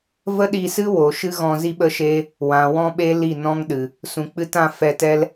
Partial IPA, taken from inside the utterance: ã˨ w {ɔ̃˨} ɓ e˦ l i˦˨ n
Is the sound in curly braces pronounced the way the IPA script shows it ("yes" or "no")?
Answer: no